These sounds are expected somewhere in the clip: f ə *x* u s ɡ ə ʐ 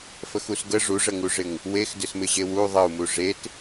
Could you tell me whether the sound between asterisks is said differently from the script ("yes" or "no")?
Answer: no